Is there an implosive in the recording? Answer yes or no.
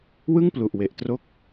no